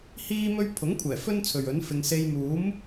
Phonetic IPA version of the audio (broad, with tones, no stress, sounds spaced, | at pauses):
h iː˥ m ɵ˥ ɥ pʰ ʊ˨˥ ŋ kʷʰ ɛː˨˩ f ɵ˥ n t͡sʰ ɵ˨ ɥ ɵ˨˥ n f ɪ˧ ŋ s e˧ j m uː˨˥ m